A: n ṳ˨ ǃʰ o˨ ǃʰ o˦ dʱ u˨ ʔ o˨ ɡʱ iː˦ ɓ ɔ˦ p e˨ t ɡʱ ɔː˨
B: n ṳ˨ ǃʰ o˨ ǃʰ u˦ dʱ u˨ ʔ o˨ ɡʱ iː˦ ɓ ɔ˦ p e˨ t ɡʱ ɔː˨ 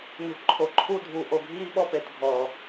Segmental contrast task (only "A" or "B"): B